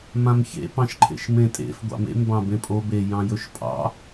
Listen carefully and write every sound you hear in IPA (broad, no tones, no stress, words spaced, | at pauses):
mãmçḛpɑ̃ʃǃʰḛʃ mẽtʼḛf ɡʷɑ̰mḛmbɑ̃ bẽpʼo bejɑ̃ jɵʃpʼɑ̰